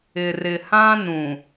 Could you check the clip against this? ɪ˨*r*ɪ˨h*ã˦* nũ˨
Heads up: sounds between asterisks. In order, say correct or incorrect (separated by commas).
correct, correct